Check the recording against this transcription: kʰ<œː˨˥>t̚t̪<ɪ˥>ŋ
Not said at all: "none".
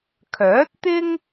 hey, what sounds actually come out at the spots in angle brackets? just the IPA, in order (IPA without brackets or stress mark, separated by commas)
œː˨˥, ɪ˥